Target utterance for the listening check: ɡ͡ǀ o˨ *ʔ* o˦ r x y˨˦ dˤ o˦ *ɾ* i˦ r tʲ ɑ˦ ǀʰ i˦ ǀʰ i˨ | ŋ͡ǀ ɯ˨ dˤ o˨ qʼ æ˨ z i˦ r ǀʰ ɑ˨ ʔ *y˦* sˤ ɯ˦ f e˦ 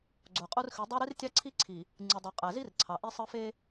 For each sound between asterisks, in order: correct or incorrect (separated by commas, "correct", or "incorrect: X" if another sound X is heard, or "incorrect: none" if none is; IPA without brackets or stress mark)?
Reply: incorrect: qʼ, correct, incorrect: i˦